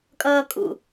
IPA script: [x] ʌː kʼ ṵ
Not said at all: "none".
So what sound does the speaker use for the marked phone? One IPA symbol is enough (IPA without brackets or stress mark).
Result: kʼ